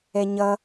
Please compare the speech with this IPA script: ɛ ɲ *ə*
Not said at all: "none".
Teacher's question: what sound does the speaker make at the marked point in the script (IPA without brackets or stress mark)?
ʌ